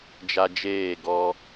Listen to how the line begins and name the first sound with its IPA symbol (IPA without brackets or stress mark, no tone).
d͡ʒ